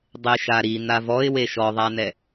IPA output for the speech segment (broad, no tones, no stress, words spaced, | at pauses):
dˤeʃaɾi n̪avɔɪ̯we ʃɔðˤanɛ